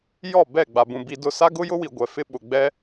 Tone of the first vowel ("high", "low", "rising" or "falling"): falling